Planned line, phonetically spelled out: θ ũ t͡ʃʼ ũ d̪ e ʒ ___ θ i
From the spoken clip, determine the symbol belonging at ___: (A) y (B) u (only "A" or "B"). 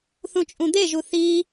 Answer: B